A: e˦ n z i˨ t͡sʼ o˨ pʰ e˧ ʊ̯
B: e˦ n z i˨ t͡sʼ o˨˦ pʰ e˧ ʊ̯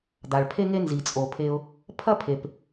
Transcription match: A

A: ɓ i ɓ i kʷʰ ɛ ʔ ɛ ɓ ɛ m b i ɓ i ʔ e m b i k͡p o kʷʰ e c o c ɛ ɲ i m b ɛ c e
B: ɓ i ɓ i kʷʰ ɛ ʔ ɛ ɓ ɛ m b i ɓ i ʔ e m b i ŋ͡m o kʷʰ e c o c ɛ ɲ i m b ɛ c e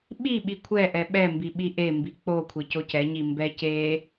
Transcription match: A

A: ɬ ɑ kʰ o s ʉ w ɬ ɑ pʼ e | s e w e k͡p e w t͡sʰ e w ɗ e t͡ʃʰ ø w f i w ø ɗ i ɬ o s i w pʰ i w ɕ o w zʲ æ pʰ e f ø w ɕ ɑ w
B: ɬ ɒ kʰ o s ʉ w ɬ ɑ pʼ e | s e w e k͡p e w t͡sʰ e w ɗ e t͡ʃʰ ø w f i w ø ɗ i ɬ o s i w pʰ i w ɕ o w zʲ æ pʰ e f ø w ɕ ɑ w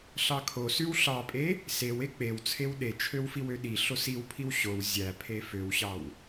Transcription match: A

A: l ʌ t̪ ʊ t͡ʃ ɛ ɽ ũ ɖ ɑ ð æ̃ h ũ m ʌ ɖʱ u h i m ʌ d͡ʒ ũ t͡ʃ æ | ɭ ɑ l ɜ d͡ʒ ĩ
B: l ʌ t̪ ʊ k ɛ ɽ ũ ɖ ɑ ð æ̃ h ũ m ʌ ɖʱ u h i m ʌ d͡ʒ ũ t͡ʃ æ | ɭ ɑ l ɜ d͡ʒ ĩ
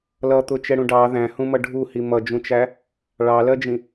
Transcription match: A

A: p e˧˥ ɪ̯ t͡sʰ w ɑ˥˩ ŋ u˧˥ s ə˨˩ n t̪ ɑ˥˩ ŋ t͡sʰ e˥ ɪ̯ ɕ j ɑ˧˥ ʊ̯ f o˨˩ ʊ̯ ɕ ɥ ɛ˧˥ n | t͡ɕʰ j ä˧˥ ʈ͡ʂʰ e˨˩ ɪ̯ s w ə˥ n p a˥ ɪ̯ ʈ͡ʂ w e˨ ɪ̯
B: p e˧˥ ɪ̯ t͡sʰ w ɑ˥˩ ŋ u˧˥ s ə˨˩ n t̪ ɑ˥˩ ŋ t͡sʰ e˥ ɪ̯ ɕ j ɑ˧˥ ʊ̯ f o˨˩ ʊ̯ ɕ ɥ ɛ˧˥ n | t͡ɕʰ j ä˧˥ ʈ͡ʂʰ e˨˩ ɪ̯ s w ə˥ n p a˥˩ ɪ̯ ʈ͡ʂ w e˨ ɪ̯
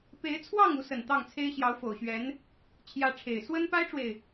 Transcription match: A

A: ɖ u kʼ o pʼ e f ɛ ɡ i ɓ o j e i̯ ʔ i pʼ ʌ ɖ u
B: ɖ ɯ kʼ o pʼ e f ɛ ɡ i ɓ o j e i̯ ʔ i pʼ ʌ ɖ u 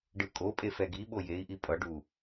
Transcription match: B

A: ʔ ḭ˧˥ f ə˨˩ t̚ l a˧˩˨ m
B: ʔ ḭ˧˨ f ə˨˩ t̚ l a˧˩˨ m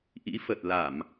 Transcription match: A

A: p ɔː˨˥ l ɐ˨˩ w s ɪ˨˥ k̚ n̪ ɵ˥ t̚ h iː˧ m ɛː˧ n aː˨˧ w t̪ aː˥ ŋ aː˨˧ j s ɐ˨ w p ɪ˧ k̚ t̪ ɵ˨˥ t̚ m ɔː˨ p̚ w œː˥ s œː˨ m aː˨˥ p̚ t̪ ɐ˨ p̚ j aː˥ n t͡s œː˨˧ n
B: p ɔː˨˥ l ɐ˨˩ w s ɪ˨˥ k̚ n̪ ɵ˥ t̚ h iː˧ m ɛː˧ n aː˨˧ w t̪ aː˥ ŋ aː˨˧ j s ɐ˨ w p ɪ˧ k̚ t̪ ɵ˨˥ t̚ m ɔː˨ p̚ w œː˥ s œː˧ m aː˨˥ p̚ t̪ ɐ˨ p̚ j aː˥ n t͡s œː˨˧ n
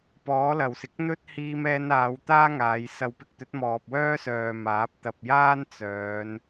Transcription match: A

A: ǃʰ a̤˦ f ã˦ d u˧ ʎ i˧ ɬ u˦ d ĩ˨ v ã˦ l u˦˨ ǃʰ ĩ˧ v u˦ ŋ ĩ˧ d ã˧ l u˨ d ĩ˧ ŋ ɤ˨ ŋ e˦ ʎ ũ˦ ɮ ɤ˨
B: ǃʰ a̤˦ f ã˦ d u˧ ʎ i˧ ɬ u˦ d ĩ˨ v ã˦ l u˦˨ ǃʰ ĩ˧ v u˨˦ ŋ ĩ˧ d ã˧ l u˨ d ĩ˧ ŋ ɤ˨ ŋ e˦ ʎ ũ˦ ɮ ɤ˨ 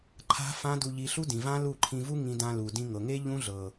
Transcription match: A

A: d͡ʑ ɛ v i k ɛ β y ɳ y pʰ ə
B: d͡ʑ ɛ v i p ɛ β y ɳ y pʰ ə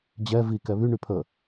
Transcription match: A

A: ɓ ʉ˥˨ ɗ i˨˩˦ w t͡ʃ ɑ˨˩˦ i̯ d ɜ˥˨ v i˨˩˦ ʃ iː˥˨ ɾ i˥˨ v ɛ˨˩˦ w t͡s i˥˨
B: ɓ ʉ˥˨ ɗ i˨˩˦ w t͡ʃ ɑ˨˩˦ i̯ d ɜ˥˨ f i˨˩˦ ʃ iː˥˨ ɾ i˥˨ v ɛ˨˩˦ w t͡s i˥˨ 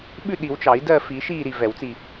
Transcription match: B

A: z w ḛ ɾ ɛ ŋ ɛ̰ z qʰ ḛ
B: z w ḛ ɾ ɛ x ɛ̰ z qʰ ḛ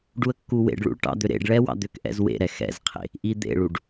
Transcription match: B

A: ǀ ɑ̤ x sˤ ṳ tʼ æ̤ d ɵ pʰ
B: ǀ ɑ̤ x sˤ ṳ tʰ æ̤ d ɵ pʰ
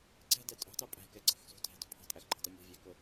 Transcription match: B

